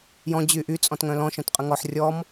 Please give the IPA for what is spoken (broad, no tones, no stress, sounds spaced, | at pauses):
j ɔ̃ d͡ʑ y ʔ y t͡sʼ ɔ̃ t ŋ œ̃ l ɔ̃ ʃ œ̃ t qʼ ə ŋ ɔ ħ rʲ ɔ m